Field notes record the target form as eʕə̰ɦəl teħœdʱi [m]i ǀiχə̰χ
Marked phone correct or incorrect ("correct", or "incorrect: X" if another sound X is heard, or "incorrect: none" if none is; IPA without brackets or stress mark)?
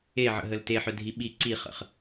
incorrect: ɓ